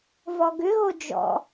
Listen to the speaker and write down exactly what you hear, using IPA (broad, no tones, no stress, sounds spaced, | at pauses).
v ɔ ɡ ʏ ɣ o d͡ʒ ɔ̰